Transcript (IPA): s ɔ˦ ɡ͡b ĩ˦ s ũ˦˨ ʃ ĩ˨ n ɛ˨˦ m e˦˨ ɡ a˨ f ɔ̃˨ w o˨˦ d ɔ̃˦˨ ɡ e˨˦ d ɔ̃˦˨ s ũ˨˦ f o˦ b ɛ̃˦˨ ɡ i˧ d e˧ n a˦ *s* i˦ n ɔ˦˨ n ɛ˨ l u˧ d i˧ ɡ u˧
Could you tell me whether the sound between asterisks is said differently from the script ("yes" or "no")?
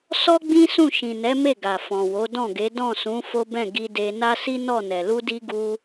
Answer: no